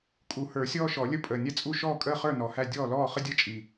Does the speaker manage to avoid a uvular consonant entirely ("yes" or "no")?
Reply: no